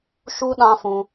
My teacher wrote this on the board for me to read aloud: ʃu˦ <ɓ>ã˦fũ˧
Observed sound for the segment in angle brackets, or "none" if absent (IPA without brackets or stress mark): ɗ